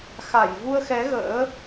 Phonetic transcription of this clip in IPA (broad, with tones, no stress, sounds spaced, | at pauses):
x a˧˩ j v u˧ ə̯ x ɛ˨˦ ɣ ə̰ː˧˥